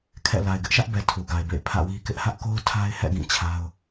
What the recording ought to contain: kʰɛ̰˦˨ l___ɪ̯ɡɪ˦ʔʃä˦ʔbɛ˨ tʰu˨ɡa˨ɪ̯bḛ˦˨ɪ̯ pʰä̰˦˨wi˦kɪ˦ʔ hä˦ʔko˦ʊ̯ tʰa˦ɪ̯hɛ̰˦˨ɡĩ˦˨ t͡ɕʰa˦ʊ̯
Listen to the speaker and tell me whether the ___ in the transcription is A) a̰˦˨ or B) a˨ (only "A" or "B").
B